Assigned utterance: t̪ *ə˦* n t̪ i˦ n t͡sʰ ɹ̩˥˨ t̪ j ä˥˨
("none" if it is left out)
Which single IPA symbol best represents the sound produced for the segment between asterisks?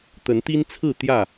ə˨˦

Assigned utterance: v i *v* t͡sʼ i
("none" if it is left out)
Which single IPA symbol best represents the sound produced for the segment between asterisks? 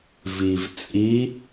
v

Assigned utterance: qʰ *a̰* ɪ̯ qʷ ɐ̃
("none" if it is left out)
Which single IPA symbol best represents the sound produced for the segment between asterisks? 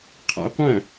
a̰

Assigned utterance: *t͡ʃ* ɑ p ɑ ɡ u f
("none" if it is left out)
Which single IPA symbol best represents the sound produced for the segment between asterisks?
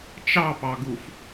t͡ʃ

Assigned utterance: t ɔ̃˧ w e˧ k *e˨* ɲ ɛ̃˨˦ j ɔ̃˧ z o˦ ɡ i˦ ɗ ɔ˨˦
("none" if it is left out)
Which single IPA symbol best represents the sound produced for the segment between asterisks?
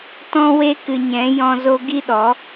ɨ˨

